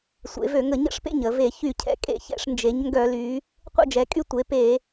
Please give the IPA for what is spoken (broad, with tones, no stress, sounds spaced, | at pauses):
sʷ ḛ˩˧ v ø˧˩˧ ŋ ə˧˩˧ ɲ ə̰˥˩ ʂ p ḛ˥˩ ɲ ə˧˩˧ v e˧˩˧ ç y˧˩˧ cʰ ɛ̰˩˧ kʼ ḛ˧˩˧ ç ɛ̰˧˩˧ ʂ n d͡ʒ e˩˧ ɲ ŋ ɡ œ˧˩˧ l y˩˧ | qʷ ə̰˥˩ d͡ʒ ɛ˩˧ kʼ y˥˩ tʷ e˩˧ p e˧˩˧